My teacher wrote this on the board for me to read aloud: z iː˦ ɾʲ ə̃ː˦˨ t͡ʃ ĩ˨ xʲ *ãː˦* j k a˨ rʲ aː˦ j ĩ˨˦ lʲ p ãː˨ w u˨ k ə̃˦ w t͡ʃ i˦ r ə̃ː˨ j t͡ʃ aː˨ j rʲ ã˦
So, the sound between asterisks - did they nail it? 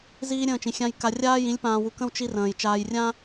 no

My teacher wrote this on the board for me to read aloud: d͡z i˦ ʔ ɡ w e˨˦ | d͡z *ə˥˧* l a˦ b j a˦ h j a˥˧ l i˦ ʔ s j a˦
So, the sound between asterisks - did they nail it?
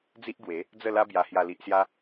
yes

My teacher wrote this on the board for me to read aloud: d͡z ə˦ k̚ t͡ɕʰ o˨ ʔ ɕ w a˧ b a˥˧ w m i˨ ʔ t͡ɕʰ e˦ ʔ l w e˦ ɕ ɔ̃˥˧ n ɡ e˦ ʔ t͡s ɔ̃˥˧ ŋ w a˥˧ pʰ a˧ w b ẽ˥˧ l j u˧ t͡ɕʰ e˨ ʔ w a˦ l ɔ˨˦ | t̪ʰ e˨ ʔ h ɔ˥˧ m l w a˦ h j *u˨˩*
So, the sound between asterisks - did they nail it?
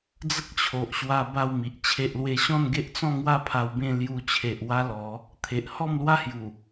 yes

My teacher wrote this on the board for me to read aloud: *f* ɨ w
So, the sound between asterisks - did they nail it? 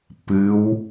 no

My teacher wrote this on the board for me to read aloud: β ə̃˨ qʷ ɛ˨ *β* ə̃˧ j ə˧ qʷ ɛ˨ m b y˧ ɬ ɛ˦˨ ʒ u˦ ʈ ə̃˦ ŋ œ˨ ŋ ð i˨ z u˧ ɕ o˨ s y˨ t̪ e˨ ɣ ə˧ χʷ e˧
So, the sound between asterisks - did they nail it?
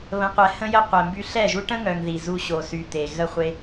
no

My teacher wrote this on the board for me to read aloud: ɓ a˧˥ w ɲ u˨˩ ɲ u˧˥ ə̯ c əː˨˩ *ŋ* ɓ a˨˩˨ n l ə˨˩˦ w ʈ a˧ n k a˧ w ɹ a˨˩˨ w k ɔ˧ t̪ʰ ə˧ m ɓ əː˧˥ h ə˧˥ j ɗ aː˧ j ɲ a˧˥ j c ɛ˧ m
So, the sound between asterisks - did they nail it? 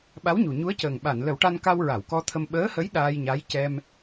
yes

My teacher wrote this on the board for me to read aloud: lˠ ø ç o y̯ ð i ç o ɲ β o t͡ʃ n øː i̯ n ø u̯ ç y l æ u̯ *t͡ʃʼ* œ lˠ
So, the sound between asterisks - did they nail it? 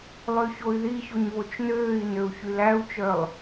no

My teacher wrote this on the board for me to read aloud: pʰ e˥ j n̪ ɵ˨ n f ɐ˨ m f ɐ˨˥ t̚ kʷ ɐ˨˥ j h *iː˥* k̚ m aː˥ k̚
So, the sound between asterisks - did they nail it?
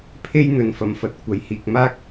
no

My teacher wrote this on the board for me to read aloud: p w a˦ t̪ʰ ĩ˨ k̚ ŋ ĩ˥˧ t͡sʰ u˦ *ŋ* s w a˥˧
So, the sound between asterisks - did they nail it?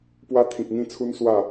no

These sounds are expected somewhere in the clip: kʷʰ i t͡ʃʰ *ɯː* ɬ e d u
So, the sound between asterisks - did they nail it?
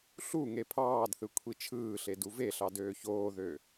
yes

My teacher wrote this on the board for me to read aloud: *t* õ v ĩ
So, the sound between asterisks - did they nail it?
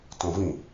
yes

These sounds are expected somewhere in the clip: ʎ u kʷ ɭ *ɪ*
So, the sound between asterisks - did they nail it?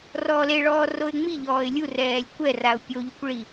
no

